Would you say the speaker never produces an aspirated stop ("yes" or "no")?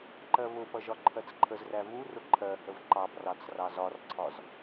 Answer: no